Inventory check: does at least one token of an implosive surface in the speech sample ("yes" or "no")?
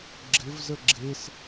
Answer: no